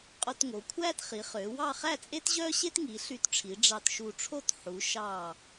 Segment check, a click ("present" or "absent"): absent